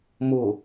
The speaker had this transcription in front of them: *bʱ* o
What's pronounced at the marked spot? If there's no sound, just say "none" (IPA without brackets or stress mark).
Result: m